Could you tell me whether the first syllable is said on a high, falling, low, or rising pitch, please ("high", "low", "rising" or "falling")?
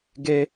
high